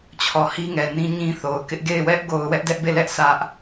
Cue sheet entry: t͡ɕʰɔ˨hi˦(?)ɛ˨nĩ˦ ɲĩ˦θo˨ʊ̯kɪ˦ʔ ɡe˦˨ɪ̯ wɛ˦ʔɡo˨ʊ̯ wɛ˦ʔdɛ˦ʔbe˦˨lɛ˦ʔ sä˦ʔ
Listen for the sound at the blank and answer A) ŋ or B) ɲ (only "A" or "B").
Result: A